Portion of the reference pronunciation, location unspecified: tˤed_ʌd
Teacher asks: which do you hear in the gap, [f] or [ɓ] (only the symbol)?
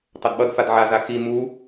ɓ